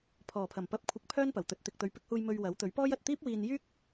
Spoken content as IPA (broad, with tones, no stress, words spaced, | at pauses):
pʰɔː˨˩pʰɐ˨˩m pɐ˧p̚ kʷʰɪ˧k̚pʰœː˥npɐ˨˩wt̪ɵ˨t̚ t̪ɪ˨k̚t̪ɵ˨˧ɥpɪ˧k̚huː˧j mɵ˧ɥwɐ˨˥wt̪ɵ˨˥ɥ pɔː˥jɐ˨t̚ t̪iː˥p̚wiː˧njyː˥k̚